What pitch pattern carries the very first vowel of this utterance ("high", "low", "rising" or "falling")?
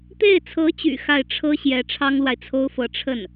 falling